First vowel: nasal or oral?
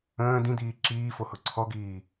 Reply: nasal